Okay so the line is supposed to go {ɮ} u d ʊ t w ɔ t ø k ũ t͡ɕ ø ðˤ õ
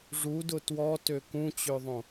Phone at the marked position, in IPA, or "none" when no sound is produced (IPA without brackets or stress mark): ʐ